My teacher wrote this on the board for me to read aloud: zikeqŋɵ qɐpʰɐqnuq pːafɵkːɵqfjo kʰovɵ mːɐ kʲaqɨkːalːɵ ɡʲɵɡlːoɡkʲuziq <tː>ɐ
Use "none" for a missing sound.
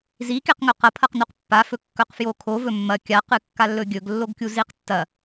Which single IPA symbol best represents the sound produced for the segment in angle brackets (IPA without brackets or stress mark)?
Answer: tː